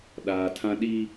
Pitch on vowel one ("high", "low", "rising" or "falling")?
low